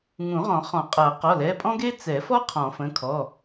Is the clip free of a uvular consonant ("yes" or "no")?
no